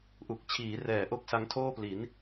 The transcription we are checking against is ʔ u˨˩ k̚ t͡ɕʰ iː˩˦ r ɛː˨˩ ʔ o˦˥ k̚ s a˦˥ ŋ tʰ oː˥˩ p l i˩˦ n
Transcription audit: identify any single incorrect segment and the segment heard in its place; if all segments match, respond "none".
none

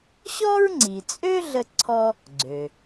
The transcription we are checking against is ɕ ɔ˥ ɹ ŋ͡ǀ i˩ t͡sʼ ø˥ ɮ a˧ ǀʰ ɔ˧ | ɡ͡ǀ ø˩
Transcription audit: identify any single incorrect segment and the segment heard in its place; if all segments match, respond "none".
a˧ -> ə˧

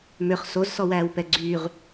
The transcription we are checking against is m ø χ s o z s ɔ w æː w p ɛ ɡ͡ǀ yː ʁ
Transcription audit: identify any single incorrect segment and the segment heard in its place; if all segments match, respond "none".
none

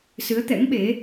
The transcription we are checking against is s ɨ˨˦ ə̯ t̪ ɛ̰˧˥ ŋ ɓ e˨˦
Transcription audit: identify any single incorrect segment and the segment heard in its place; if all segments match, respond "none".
none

